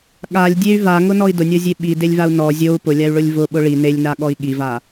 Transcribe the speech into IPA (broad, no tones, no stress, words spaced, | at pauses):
ɠalʲdʲey̯ vaŋʊnɔi̯ dʊnʲɔzʲe ɓidelʲvau̯ nɔ zʲou̯ pʊlʲay̯ɭʊlʲ vʊɓʊ ɭi nelʲnaɠɔi̯ ɠiva